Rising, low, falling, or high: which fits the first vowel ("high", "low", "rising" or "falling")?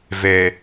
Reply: low